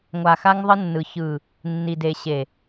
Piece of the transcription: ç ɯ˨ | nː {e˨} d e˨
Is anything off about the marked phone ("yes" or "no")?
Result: yes